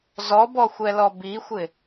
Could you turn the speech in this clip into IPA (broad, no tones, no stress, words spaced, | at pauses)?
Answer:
zɔbɔxʷɛlɔ bixʷɪ